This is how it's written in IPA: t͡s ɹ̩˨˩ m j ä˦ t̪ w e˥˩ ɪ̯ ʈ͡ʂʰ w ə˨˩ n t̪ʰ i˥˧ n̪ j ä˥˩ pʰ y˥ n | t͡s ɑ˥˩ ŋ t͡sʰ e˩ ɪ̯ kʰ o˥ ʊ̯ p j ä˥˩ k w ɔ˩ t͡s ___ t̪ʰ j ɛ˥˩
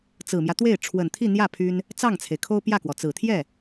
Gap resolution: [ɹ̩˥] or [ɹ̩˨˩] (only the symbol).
ɹ̩˨˩